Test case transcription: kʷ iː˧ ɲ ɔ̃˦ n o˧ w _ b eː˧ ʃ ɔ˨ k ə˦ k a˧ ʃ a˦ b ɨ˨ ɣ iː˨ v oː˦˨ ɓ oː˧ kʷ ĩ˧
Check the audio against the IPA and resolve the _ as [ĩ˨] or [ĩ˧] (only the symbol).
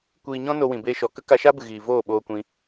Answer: ĩ˨